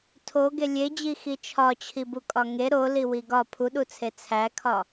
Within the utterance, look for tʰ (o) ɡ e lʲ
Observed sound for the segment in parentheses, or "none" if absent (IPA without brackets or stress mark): o